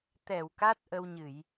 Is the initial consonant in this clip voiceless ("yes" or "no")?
yes